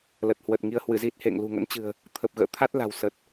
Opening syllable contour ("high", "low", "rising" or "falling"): low